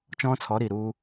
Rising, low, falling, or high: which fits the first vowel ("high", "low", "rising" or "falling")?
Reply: high